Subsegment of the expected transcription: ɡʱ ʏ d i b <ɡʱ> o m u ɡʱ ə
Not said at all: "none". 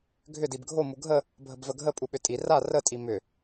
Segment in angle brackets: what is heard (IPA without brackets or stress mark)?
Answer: ɡʱ